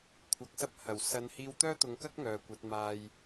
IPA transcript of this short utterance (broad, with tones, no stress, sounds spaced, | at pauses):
kʷʰ ɐ˧ k̚ s ɐ˥ p̚ h ɐ˨˩ w s ɐ˨˧ n h iː˧ w t̪ œː˥ t̪ ʊ˨˧ ŋ k ɐ˥ k̚ ŋ œː˨ kʷ ɐ˨˥ t̚ m aː˧ j